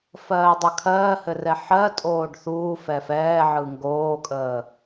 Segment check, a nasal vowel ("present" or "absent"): absent